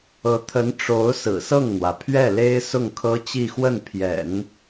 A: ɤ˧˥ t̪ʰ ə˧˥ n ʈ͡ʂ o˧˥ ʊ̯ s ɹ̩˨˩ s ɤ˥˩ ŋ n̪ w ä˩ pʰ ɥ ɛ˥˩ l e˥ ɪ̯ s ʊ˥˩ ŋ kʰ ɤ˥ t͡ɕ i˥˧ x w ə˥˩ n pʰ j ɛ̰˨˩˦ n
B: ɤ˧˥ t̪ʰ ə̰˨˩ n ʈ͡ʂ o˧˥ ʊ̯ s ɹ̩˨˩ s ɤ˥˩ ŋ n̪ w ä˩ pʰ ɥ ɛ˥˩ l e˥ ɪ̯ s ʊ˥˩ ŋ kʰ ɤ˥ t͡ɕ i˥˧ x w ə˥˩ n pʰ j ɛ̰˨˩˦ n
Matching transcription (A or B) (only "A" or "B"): A